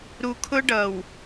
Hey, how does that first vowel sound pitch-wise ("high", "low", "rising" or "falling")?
low